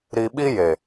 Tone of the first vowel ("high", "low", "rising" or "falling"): low